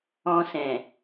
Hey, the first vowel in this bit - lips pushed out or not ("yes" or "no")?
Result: yes